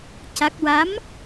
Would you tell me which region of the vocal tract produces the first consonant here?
palate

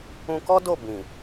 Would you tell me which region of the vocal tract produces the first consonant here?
velum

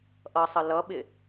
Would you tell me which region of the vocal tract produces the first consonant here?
throat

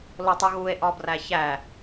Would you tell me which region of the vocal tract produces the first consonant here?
tongue tip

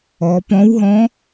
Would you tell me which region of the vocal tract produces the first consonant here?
lips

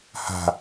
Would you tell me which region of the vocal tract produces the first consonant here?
throat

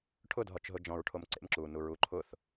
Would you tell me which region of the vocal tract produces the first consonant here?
retroflex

